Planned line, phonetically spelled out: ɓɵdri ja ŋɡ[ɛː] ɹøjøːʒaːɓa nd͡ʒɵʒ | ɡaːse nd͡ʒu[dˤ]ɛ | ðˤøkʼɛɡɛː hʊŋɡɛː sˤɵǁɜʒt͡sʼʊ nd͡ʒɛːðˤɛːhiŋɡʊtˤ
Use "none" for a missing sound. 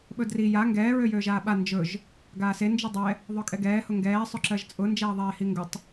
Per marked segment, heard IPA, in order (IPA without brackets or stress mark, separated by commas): ɛː, dˤ